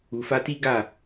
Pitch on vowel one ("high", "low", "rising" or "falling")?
low